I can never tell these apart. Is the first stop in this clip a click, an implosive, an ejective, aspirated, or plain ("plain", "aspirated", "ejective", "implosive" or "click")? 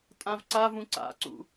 ejective